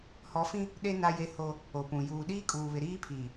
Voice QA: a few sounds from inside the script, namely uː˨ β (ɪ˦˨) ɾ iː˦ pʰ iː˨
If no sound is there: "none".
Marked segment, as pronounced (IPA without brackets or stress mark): ɪ˨